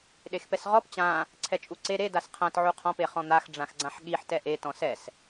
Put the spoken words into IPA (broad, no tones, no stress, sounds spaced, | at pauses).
ɗ e x p ɛ s ʁ ɔ p t͡ɕ ã | ǀʰ ɛ t͡ʃʼ u ǀ e ɾ e d a s qʰ ã t ʕ u qʰ ɔ̃ p e χ ɔ̃ n̪ a x ɖ͡ʐ ã x ɡ͡ǀ ã ħ ɠ i ħ t ɛ ʔ e t ɔ̃ s ɛ s